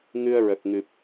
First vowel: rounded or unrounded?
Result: unrounded